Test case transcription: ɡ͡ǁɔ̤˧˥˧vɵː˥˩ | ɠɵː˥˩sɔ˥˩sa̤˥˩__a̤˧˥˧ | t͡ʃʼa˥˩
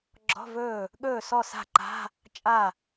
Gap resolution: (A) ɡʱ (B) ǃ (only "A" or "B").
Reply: B